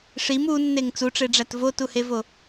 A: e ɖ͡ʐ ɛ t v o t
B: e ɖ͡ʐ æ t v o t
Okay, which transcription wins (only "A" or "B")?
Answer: B